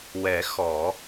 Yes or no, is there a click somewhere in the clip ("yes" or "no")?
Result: no